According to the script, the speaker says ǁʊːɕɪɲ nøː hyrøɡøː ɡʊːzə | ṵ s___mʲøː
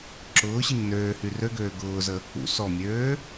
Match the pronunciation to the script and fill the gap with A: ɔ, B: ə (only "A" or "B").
A